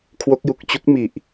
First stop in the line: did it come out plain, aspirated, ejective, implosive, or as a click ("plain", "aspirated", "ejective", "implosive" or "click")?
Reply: aspirated